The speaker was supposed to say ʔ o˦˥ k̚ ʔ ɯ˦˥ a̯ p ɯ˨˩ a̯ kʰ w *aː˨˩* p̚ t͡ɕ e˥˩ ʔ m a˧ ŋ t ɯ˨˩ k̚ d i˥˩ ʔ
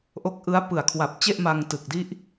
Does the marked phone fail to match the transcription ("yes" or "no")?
yes